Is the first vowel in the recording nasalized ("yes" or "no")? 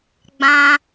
yes